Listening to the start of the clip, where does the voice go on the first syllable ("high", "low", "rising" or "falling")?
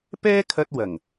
high